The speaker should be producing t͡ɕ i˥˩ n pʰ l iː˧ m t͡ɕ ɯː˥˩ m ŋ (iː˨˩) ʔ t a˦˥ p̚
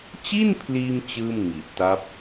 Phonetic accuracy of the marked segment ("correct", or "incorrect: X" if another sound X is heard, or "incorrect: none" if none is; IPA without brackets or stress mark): incorrect: i˨˩